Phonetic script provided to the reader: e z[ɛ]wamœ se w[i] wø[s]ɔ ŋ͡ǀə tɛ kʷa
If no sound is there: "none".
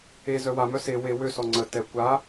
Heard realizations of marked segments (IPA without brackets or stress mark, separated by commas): œ, e, s